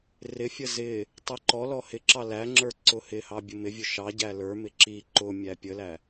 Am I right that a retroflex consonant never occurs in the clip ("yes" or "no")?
yes